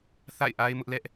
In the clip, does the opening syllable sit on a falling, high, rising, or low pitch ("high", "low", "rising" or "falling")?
falling